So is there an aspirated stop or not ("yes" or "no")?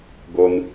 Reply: no